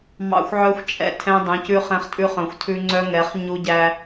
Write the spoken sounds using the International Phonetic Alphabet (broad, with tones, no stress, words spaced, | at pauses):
mɑ̰˦xʷʕœ˦xʷt͡ʃʼɛ̰˨ tʰɛ̃˦dˤũ˨˦cʉ˦ χɛ̃˦χtʼʉ˦χœ̃˨xʷtʰʉ˦ ŋ͡ǀœ˦ŋɛ˨˦χ ɲu˦ɟæ˦